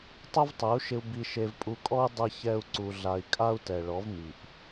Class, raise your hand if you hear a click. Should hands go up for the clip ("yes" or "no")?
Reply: yes